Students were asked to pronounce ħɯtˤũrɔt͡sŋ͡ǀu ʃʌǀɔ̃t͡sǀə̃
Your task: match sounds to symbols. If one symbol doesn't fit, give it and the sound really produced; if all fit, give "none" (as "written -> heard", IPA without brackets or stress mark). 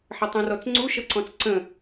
ɯ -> ə